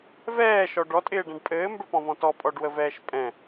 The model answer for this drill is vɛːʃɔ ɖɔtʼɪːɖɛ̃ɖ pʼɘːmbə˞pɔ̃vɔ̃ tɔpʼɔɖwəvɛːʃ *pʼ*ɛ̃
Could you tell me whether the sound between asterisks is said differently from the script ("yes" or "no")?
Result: no